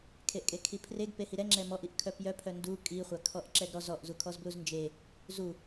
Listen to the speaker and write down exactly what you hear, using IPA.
kʰ e ʔ kʼ e kʰ i pʰ r e ɡ p e h i ɾ ɛ ŋ͡ǁ ɛ m ɔ ʔ i ʔ kʰ œ p j œ pʰ œ n d u kʼ i χʷ a kʰ ɔ ʔ ǁ ɛ ɡ ɾ ɔ z ɔ ʔ z u kʰ ɔ z b l u z n d͡ʒ e | z u

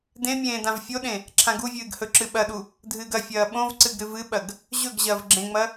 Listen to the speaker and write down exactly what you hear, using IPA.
d ẽ mʲ ẽː d ã v fʲ o ɗ ẽ | ǁʰ ã ɡ u vʲ ɨː ɡ h ɵ ǁ ɨ ɓ ɐ ɗ u | dʱ ɨː ɡ ɐ fʲ ɐː ɓ õ v ǀ ɨ ɡ ɾ ɨ v ɨ ɓ ɐ ɡ | ʑ ɵ ɡ ʑ ɐː v ɡ͡ǁ ẽ ŋ͡m ɐ

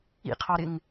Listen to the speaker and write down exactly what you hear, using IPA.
ḭ qʰ ɑ ɾ ɪ ŋ

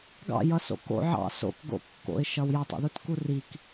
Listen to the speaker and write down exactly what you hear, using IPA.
ɡ ɑ̰ j ʌ s o̰ k o̰ ʕ ɑ̰ s o̰ k ɡ o̰ kː o̰ ɪ̯ ʃ ʌ w j ʌ tˤ o̰ ð u t k u r i k

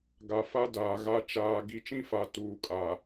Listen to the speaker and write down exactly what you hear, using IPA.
ɡ a˨ f a˦ d aː˨ ɣ a˦ t͡ʃ aː˨ ɡ i˨ t͡ʃ ĩ˦ f a˨ t uː˨ kʼ a˨

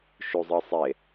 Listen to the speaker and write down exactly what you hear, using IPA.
ʃ u zˤ ɯ sˤ e

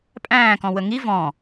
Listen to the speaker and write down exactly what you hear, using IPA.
pʼ æ̃ː k ɔ̃ w ə ŋ i v ɔ̃ː

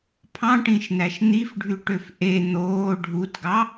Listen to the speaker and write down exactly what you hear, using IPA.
pʰ ɑ̃ ʈ ĩ ʃ n̪ æ ʃ n̪ i f ɖʱ y ʈ ø f ʔ e n̪ oː ɖʱ u t ɡ ɑ

